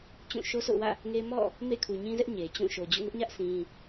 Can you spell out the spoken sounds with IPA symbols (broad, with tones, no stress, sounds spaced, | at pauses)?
t͡ɕ ũ˦˨ ʃ o˦ sʰ o̰˦˨ ʊ̯ w ä̰˦˨ | ŋ e˦ m ɔ̰˦˨ | m ḛ˦˨ kʰ u˨ ɲ ĩ˦ z ɛ˦ ʔ ɲ e˨ t͡ɕ ũ˦˨ ʃ o˨ d͡ʑ ṵ˦˨ ŋ ʊ˦ ʔ ɲ ä˦ ʔ sʰ ĩ˦